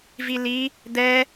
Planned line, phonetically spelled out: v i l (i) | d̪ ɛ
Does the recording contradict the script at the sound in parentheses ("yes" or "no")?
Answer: no